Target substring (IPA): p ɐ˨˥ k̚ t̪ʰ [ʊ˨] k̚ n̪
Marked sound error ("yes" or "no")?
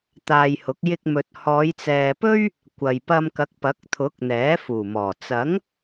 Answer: yes